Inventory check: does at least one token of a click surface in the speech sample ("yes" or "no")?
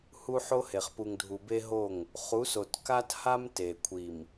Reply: no